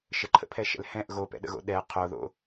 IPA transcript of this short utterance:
ʃ ə ǃʰ ə̰ pʰ ɛ ʃ ɛ̰ l h ɛ̃ ʔ ɣ o p ɛ̰ ɗ ə̰ ɣ o̰ ɗ ɛ qʰ o ð o̰

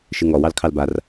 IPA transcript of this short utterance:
ʃ ɨ ŋ ɔ w ɑ l kʰ ɑ l b a r

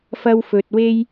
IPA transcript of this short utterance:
f ɐ˥ w f ɵ˧ t̚ w e˥ j

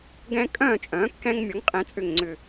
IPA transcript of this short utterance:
ɡ ɛ̃˦ kʼ œ̃ː˥˨ t͡ʃʼ œ̃ː˩˥ kː ɛ̃˦ ŋ mʲ ɔ˩˥ ŋ qʼ ɛ̃˩˥ t͡sʼ ʏ˧˩ ŋ ŋ͡ǀ ʏ˧˩

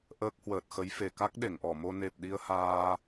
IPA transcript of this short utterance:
ʔ əː˦˥ k̚ h w əː˨˩ t̚ x ə˨˦ j f e˨˩ k a˦˥ k̚ ɗ e˧˩ ŋ ʔ ɔ˧˩ m o˧ n e˨˩ p̚ ɗ i˧ ə̯ h aː˧

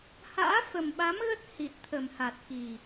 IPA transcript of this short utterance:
h a̰ː˧˥ f ə˨˩ m ɓ a˨˦ m ɣ ə˦˥ t̚ h i˨˩ t̚ t̪ʰ ə˨˩ m h a˨˩ t̚ x i˨˩

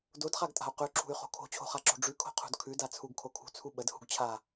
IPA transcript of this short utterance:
d o d χ a ɡ tʼ a̤ u̯ q ʉ ǁʰ ṳ y̯ χ o̤ kʰ o̤ t͡ɕʰ o̤ χ a ǁ o̤ ɖ͡ʐ ʉ kʰ o̤ qʰ ṳ d kʰ ʉ d a t͡sʰ u ɡ kʰ o kʰ ṳ t͡sʰ u ɓ ə d h ṳ ɡ t͡ɕʰ a

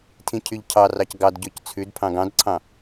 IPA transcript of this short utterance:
tʰ ĩ cʰ y ʎ cʰ ɑ r ɑ c ɡ ɑ d ɟ ɵ c t͡sʰ ʉ d pʰ ɑ̃ ɡ ɑ̃ d ǀʰ ɑ̃

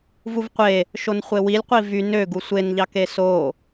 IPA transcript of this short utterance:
v u v qʷ e | ʃ o n χʷ e w i lʲ qʷ i v y n ø ɡ u sʷ e n ʎ ɑ k e s o

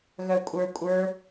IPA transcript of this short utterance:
ɣ œ kʷʼ ə˞ kʷʼ ə˞

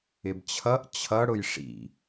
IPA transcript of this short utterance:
ɪ b t͡ɕʰ ʌ ʔ t͡ɕʰ ʌ ɽ ʊ j ʂ ḭ

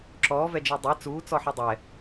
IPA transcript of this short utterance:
ǁ ɔː v ɛ d͡ʒ i dˤ ɛ t͡s uː t͡s ɔ ħ ɔ dˤ ɛ

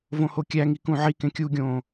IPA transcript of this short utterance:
v õ h o kʲ æ ŋ i k ũ ʕ i k ẽ kʲ u ɡʲ õː

